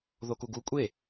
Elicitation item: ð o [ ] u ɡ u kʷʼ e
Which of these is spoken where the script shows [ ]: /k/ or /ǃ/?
k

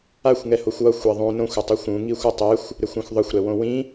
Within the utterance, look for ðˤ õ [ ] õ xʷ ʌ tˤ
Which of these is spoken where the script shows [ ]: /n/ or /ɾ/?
n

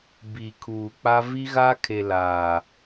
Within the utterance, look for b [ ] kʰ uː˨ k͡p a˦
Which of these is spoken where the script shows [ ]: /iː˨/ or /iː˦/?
iː˨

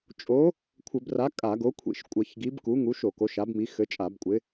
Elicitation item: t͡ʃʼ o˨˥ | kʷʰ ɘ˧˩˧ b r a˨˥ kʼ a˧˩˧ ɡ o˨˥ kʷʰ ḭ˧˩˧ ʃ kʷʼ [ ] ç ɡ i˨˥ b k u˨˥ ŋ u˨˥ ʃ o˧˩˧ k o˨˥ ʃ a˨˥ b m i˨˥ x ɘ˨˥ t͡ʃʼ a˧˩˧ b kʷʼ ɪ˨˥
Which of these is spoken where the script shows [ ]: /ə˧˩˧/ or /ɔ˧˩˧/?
ə˧˩˧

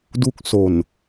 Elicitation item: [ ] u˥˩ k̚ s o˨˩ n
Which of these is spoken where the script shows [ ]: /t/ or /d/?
d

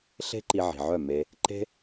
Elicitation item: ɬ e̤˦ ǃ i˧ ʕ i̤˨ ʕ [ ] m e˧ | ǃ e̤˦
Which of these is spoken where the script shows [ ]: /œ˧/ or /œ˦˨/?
œ˦˨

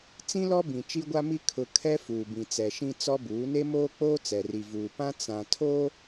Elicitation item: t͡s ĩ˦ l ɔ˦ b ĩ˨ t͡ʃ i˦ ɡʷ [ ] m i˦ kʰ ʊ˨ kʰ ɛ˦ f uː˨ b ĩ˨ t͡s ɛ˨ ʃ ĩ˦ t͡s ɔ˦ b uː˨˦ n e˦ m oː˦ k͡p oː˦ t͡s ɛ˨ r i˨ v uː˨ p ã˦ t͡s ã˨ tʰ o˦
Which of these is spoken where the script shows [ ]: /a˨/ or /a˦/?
a˦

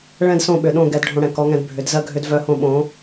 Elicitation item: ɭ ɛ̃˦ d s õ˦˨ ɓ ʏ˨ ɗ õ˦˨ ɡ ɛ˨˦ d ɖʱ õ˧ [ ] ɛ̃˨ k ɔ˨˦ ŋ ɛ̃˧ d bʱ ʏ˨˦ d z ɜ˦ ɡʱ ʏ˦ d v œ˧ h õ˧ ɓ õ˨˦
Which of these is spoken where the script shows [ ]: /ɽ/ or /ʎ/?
ɽ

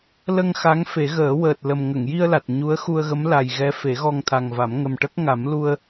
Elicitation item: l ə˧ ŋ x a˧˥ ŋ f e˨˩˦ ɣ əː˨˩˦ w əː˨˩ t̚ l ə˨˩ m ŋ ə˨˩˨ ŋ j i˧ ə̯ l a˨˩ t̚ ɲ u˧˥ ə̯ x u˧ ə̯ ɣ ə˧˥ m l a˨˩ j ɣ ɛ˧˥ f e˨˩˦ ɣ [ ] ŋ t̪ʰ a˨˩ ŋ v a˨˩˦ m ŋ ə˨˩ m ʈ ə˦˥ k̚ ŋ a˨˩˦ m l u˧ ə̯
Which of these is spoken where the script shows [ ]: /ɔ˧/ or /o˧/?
ɔ˧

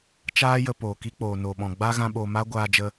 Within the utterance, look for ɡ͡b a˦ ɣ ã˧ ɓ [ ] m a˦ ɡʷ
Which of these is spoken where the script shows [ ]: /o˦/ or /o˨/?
o˨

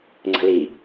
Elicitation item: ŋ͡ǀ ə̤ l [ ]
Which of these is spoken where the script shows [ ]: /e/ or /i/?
i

